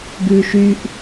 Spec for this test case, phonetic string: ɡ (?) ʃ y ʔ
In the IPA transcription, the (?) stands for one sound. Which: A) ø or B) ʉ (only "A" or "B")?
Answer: B